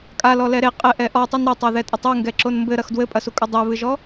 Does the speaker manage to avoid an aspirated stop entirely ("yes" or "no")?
yes